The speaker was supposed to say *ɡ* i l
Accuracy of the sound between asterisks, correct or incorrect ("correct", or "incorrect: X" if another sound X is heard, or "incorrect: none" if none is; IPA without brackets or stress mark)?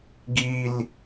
correct